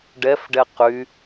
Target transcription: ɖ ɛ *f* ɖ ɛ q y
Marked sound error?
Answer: no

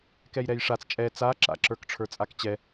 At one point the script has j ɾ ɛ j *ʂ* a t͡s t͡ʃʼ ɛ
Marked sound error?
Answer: no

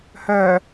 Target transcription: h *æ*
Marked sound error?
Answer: yes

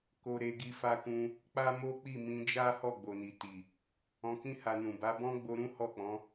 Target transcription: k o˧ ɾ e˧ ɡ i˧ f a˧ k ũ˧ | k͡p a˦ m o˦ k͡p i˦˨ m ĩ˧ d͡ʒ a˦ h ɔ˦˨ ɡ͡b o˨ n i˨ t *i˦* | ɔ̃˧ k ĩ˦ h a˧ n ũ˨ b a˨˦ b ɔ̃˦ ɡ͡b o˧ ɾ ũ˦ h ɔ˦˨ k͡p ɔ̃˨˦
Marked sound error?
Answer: yes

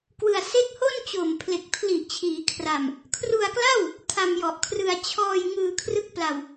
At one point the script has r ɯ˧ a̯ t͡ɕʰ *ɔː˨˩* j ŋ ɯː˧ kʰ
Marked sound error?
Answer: yes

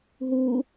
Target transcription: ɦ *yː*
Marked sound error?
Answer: yes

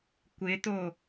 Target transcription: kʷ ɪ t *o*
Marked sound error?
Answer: no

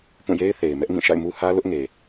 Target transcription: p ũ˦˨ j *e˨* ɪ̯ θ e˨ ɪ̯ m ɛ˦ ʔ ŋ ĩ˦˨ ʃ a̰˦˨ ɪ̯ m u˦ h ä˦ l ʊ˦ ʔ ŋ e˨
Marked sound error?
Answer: yes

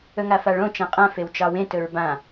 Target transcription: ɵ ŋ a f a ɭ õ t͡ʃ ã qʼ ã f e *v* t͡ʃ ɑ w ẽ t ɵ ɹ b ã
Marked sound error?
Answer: yes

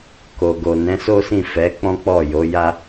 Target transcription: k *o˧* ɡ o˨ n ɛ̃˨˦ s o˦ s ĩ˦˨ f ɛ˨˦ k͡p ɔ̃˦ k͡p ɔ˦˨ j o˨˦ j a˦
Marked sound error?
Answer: yes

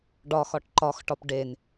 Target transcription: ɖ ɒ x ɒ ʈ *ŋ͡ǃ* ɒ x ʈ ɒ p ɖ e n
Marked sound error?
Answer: yes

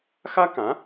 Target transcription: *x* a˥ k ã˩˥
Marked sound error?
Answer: no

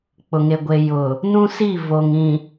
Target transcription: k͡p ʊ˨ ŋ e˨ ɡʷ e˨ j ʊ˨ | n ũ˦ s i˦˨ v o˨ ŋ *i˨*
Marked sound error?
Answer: yes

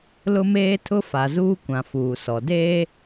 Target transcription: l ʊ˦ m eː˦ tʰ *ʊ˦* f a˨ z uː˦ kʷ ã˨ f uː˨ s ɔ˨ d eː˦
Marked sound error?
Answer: no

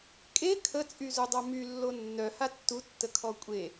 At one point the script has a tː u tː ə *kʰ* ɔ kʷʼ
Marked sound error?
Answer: no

